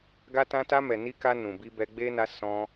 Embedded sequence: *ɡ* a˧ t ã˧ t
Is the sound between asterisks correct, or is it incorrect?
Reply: correct